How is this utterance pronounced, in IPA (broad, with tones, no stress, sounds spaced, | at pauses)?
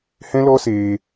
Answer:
h ɛ̃˦ l ɔ˦ s eː˧